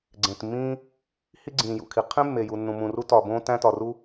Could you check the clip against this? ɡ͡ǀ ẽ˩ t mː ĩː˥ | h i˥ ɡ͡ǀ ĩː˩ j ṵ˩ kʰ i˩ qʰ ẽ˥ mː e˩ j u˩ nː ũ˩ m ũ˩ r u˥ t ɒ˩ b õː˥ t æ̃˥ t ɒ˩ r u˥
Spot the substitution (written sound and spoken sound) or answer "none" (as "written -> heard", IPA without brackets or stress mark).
none